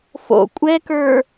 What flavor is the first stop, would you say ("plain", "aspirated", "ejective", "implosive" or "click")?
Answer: ejective